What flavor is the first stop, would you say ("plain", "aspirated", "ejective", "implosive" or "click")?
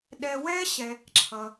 implosive